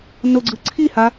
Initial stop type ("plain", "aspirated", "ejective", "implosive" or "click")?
click